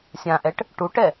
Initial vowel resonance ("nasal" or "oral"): nasal